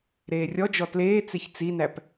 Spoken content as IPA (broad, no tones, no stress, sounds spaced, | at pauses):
ɾ eː rʲ ɔ d͡ʒ ɔ t l eː t͡s e ç t͡s i n æ p